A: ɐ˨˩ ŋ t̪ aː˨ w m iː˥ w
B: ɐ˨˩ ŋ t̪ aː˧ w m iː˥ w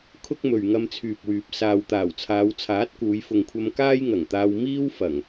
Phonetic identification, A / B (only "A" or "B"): B